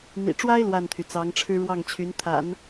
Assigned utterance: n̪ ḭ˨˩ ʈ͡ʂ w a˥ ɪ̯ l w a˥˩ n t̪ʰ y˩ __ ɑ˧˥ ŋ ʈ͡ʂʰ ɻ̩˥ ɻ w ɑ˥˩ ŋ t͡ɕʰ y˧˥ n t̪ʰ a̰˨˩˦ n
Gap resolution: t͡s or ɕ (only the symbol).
t͡s